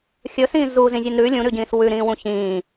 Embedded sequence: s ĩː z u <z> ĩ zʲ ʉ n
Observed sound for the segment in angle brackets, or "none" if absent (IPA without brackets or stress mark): z